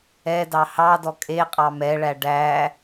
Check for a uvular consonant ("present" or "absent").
present